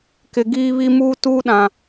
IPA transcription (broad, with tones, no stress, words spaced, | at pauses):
kɪ˨ɡiː˦βi˦ muː˦tuː˦ɗã˨